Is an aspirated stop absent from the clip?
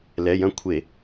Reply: no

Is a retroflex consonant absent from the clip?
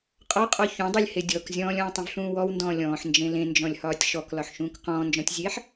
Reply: yes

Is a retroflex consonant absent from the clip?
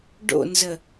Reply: no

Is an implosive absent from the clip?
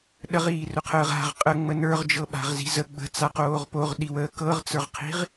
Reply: no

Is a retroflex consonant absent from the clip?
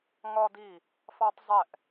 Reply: yes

